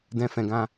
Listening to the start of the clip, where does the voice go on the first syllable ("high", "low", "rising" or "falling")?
high